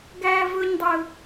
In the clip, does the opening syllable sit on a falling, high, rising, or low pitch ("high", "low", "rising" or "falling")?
high